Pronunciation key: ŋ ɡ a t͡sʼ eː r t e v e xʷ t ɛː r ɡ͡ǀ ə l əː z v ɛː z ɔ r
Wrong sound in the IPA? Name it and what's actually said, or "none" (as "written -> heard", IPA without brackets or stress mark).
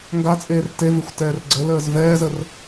ɔ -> ə